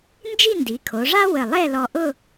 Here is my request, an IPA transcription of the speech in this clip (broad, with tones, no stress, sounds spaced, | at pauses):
n d͡ʒ i˥˧ n d i˩˧ kʰ o˩˧ ʐ a˥ w ə˧˩ lˠ ɛ˥˧ l ɔ˧ ʔ ʊ˥˧